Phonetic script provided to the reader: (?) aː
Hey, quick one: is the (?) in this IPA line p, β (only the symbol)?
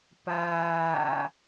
p